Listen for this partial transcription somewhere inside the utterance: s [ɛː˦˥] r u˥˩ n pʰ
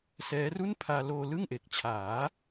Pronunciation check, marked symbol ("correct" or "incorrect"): correct